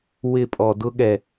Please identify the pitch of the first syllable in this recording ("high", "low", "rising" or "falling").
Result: falling